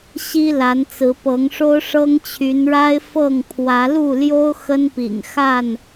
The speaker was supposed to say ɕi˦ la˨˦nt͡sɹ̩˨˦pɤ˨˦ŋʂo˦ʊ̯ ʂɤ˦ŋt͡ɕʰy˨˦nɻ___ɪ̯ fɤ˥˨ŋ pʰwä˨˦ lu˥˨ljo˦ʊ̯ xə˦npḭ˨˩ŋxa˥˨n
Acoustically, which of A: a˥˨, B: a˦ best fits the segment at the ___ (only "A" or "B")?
B